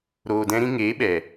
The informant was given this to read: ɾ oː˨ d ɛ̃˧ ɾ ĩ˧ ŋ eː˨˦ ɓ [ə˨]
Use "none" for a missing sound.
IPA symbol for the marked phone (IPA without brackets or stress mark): ɛ˨